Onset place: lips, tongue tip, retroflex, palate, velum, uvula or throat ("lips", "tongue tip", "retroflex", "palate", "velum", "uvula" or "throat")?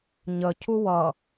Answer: palate